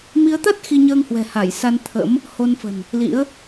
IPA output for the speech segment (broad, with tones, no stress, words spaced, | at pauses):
mi˨˦ə̯t̪a˦˥t̚ xi˧ɲəː˧ŋhwɛ̤˨˩ ha˧˩j sa˧nt̪ʰə̰˧˥m | ho˧nfə̤˨˩n | lḭ˧˥ə̯